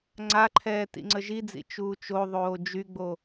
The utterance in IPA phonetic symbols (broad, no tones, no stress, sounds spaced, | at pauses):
ŋ͡ǀ a ǃʰ ɛː t ḭ ŋ͡ǀ ə ʒ i d͡z ḭ t͡ʃ uː t͡ʃ o ðˤ oː d͡ʒ y ɡ͡b o